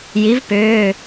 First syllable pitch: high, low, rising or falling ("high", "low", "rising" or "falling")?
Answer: rising